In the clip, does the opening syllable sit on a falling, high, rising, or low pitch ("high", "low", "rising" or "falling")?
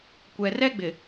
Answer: low